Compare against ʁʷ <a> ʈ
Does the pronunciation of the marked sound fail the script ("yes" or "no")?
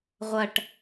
yes